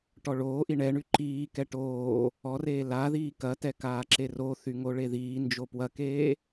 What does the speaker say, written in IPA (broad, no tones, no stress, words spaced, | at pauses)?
ʈɔɭoːʔi ɳɛɳy ǃiːkɛ ʈoː | ɔreː laðiː kɐtɛ kaːǁeroθy ŋoɭeðiːnd͡ʒo pwɐkeː